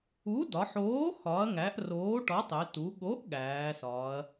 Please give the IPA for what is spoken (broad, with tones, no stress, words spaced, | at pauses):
u˨˥dɒ˩˧ħoː˨˥ xɒ˩˧ɐ̯ŋæ˩˧ʔ roː˨˥ʈɒ˨˥tˤe˩˧ tu˩˧ɠo˨˥ʔ ɠæː˩˧sɒː˩˧ɐ̯